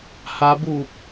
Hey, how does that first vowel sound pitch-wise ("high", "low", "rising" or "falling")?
rising